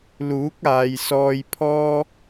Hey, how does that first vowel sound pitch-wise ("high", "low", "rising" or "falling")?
rising